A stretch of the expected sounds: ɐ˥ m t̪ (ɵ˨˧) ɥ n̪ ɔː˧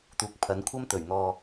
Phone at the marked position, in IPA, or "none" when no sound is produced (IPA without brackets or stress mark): ɵ˨˩